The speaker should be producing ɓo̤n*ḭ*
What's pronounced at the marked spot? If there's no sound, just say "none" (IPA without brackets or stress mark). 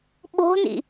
ḭ